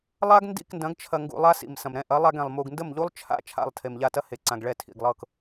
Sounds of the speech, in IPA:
lˠ a˦ ɡ n d ḭ˦˨ k n d ɐ̃˨˦ ɡ t͡ʃʰ ɐ˧ ŋ ɡ ṵ˧ lˠ a˦ s ḭ˨ m s ɐ̃˨ m ɾ ɛ̃˧ ʔ ɐ˨˦ lˠ a˧ ɡ ɛ̃˨ lˠ m u˨ ɡ n d ə˦˨ m ʎ u˦ lˠ t͡ʃʰ a̰˦ t͡ʃʰ a̰˦˨ lˠ tʰ e˨ m ʎ a˧ t ɐ˦ h e˨ ǀ ã˨ ɡ ɭ ɛ˧ tʰ ḭ˨ ɡ lˠ ɤ˦˨ k

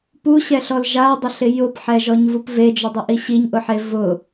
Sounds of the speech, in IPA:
p u ɕ ɛ ɬ ɔ l ʒ a dˤ ɪ ɬ ɪ j ʊ p ħ ɛ ʒ ɔ ɲ v u p v e d͡ʒ ʊ dˤ u ʔ i ɕ i ɲ ʔ ʊ ħ e v ʊ

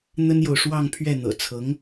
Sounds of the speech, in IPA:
n̪ ə˥ n j o˨ ʊ̯ ʂ w ɑ˥˧ ŋ pʰ ɥ ɛ˥˩ n̪ ɤ̰˨˩ t͡sʰ ɤ˧˥ ŋ

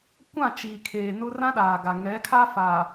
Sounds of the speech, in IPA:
kʷ ã˦˨ t͡ʃ iː˨ kʰ eː˨ n ʊ˦ r ã˦ ɗ aː˨ ɡ a˨ ŋ ɛ˨˦ kʰ a˦ f aː˨

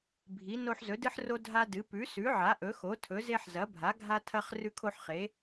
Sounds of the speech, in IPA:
bʱ i˩˥ n o˦ ħ z ɵ˩˥ d ɨ˦ ħ r o˦ dʱ a˦ d ɨ˩˥ p ʉ˩˥ s ʉ˩˥ ʕ a˩˥ ʔ ɵ˩˥ x o˩˥ tʰ ɵ˩˥ z e˦ ħ z ɐ˩˥ bʱ a˩˥ ɡʱ a˦ tʰ ɐ˦ χ r ʉ˦ kʰ o˦ ħ χ e˩˥

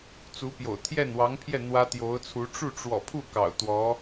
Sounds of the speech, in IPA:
t͡s u˧˥ p j o̰˨˩ ʊ̯ t̪ʰ j ɛ˥˩ n w ɑ˧˥ ŋ pʰ j ɛ˥˩ n̪ w ä˥ t̪ j o˧˥ ʊ̯ t͡sʰ u˧˥ ʈ͡ʂ u˥˩ ʈ͡ʂ w ɔ̰˨˩ pʰ u˥˩ k ɑ̰˨˩ ʊ̯ t̪ w ɔ˧˥

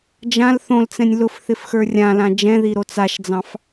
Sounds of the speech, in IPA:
d͡ʒ ã l θ õ l t͡s ɛ̃ nʲ l ʊ f θ ɪ f x ə˞ rʲ ã l ã d͡ʒ ɛ̃ ð i ɾ o t͡s a ʃ d͡z ɑ̃ f

